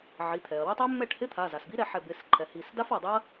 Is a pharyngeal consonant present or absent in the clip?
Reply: present